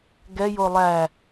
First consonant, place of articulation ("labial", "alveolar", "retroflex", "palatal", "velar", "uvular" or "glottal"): velar